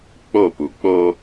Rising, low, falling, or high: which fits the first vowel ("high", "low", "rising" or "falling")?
falling